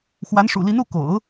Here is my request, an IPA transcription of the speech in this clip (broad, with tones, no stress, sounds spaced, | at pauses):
x w a˧˥ n ʂ ṵ˨˩ l i˧˥ n u˥˩ k o̰˨˩˦ ʊ̯